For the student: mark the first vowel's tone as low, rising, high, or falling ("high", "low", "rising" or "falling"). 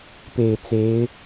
low